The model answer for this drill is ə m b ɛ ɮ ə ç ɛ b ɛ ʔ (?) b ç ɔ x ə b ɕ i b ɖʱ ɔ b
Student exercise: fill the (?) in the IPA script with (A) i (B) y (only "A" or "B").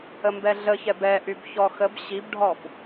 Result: B